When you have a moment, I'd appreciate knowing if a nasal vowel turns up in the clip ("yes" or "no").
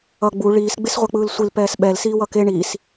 no